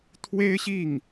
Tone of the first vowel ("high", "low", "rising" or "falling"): high